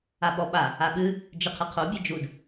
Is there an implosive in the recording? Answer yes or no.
yes